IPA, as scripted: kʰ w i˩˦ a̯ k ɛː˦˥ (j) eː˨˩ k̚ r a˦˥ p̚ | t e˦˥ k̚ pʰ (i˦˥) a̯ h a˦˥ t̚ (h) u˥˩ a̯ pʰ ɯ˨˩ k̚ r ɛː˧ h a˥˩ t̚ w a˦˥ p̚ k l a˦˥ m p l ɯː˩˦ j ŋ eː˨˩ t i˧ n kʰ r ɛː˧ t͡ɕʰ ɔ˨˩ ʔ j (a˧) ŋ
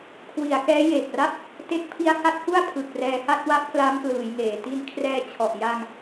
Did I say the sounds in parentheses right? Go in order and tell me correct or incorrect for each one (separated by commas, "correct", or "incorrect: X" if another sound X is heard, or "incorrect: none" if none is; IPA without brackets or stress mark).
correct, correct, correct, correct